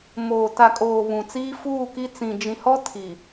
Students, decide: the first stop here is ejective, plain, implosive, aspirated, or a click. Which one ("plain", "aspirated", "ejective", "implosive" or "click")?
plain